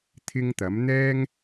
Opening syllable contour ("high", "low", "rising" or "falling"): high